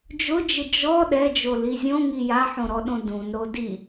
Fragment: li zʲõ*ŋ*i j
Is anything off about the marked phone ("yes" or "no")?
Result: no